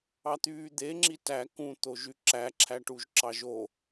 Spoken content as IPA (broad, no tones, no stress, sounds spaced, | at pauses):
ɑ t̪ yː d̪ e ŋ͡ǁ i t æ k ũ t̪ o ʒ y ǁ æ ǁʰ æ ʈ u ʒ ǁ ɑ ʒ o